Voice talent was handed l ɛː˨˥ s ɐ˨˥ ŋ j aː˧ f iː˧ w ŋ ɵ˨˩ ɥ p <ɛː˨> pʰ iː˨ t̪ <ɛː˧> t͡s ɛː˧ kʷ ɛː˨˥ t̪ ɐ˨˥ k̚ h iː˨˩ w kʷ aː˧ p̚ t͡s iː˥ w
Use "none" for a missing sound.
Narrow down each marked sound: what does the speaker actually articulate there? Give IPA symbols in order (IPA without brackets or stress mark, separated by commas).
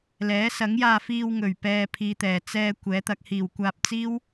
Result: ɛː˨, ɛː˨˩